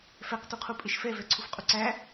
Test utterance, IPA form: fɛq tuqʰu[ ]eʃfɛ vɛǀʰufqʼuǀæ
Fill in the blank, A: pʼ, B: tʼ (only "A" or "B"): A